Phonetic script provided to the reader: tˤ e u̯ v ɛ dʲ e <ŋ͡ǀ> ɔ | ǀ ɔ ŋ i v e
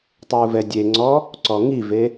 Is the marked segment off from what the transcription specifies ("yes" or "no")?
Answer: no